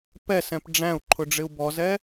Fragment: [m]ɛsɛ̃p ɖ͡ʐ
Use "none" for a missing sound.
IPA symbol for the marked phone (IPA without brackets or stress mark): p